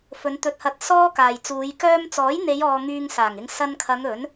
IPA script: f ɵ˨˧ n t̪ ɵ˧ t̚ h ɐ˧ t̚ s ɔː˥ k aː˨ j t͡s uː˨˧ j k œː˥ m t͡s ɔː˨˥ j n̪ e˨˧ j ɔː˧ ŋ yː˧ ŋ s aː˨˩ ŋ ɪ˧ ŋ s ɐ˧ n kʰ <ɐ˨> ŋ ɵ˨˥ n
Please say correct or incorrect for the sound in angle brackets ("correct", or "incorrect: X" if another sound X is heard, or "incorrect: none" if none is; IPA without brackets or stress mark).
incorrect: ɐ˨˧